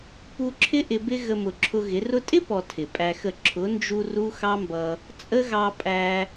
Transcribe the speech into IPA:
pu˧ǁʰɪ˦ ʔɪ˧bɪ˦ ɣə˧mʊ˨ǁʰʊ˧ɣɪ˨˦ rʊ˧tʼɪ˦ pɔ˧tʰɪ˨pʼæ˧xə˦˨ ǁʰʊ˨˦nd͡ʒu˧ ru˦xɑ˦mbʌ˧ | t͡sʼə˦ɣɑ˧pʼæ˧

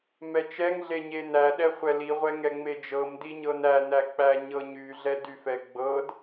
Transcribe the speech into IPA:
mɛt͡ʃɛŋɮe ɲenæɗɛ χʷɛliʁʷɛ ŋɛŋ͡med͡ʒɤmdi ɲɤnænæ k͡pæɲɤɲyɮɛ dyfɛ ɡ͡bɤd

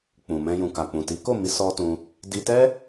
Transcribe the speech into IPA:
k͡pũ˨mɛ̃˧ jũ˨ ka˨ k͡pũ˨ti˨˦ ko˦˨mi˨˦ sɔ˦tũ˧ | di˧tɛ˦

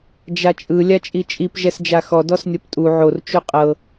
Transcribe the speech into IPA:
d͡ʒat͡ʃʼɯ lʲat͡ʃʼit͡ʃʼip ʒɛsd͡ʒaxɔ dɔsnʲɔptʼu ʕor t͡ʃuqʼɤ

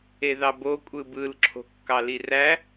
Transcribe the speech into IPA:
eðɑbo kʷʼɯbɯlǁʰo̤ kːɑliræ

